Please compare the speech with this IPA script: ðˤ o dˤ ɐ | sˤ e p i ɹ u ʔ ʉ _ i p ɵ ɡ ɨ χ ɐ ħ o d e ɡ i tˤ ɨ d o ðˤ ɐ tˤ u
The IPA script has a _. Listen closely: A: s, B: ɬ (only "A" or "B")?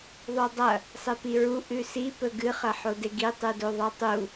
A